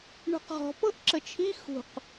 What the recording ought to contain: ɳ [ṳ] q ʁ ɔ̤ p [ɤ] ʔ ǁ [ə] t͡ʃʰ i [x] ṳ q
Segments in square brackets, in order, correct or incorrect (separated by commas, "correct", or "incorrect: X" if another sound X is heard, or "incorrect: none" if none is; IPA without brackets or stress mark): correct, correct, correct, correct